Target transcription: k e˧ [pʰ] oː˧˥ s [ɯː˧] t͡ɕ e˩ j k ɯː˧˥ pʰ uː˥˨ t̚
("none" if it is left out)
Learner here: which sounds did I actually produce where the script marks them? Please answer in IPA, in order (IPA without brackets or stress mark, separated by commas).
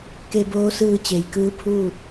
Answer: b, ɯː˧